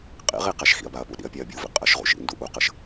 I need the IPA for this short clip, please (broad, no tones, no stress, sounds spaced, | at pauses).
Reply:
qʼ ḭ ʁ i q æ ʃ x ḭ ɐ̯ b a ɐ̯ p ṵ ɗ ḭ ɐ̯ pʲ æ ɐ̯ bʲ u v ḭ qʼ ə ʃ ʁ ṵ ʃ ḭ n d u ʔ u q ə ʃ